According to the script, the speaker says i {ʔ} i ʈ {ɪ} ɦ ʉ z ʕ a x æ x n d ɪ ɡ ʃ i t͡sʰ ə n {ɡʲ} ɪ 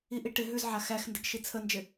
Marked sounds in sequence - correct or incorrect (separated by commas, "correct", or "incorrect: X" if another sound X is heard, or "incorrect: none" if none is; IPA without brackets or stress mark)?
correct, correct, incorrect: d͡ʒ